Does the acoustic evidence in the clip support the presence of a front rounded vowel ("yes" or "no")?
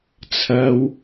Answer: no